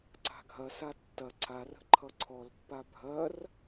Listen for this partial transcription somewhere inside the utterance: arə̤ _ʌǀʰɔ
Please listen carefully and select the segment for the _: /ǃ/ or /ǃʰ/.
ǃʰ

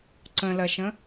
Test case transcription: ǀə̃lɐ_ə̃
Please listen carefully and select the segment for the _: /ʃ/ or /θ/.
ʃ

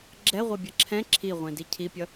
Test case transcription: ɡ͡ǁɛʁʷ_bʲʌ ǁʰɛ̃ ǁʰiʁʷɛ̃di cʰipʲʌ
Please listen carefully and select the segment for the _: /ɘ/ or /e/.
e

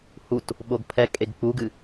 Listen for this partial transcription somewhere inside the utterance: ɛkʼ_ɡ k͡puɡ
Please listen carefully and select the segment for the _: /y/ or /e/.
e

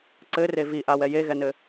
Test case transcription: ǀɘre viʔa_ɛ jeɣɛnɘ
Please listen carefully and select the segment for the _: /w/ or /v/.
w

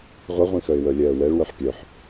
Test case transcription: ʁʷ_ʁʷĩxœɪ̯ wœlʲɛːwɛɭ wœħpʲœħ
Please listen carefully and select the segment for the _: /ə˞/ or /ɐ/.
ɐ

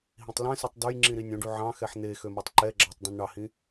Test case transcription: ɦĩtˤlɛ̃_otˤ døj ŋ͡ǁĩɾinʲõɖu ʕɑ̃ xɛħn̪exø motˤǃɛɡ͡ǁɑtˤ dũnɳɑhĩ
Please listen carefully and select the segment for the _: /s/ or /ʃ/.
s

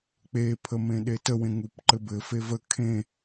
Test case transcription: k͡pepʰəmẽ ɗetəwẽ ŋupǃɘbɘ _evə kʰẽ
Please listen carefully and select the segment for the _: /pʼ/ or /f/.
f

